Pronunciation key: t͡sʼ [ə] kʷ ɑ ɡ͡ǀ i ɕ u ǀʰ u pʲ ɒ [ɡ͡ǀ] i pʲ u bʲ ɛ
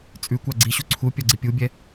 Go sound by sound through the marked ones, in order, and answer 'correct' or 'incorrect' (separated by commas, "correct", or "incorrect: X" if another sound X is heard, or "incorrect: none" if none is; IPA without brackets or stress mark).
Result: incorrect: ʉ, correct